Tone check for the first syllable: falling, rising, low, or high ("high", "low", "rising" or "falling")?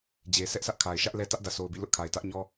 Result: low